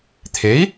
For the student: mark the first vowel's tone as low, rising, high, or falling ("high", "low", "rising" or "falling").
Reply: rising